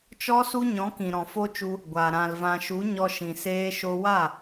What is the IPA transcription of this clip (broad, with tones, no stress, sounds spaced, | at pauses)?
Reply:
t͡ʃ ɔ˦ s u˦ ɲ ɔ̃˨˦ k ĩ˨ ɾ ɔ̃˨ f o˦ t͡ʃ u˧ | ɡʷ a˨ ɾ ã˨ l v ã˨ ʃ u˨˦ ɲ ɔ˧ ʃ ĩ˨ s eː˧ ʃ o˧ w a˦˨